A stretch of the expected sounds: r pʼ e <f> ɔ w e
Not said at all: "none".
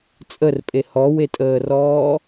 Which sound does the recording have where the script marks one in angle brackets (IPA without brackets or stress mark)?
h